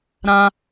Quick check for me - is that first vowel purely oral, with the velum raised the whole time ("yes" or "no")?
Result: no